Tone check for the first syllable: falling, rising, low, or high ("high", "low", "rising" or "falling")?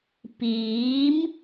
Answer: rising